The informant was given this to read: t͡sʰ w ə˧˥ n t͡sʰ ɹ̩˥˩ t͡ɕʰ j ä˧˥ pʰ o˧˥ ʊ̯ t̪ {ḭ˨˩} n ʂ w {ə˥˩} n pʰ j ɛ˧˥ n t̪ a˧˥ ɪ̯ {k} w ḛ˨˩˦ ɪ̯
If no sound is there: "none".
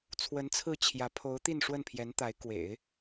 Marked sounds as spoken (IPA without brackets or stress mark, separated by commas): i˥˧, ə˥˩, k